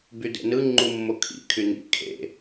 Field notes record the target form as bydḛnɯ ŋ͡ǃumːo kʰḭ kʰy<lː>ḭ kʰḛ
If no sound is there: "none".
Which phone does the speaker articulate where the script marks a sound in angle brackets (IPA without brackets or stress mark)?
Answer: n